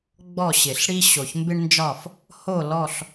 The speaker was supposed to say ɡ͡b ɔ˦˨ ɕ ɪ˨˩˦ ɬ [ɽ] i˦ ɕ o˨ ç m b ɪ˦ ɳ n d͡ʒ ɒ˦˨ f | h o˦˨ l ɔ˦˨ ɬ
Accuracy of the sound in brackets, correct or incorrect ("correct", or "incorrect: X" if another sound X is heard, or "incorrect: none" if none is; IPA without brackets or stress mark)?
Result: correct